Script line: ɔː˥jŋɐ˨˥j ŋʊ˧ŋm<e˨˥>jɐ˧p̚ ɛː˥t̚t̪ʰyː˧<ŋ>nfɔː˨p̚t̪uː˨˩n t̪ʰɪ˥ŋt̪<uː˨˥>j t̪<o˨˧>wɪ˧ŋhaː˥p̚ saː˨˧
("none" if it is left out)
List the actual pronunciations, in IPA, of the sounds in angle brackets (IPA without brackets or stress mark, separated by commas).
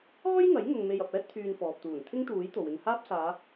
e˧, none, uː˨˥, o˨